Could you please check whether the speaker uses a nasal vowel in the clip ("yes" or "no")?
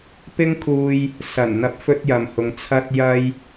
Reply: no